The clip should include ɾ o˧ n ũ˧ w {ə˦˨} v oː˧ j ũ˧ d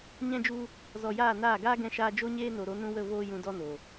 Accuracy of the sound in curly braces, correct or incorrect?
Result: correct